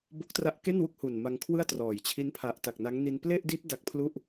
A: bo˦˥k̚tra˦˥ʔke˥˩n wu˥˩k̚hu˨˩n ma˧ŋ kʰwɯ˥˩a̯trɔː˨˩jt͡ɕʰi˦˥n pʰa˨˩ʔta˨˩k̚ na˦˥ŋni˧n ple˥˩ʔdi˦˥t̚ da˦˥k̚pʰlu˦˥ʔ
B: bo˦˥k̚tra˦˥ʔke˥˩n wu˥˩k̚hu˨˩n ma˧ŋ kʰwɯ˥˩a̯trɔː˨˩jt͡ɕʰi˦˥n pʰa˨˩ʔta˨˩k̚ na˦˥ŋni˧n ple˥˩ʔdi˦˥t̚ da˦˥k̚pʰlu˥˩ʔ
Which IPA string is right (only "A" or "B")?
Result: B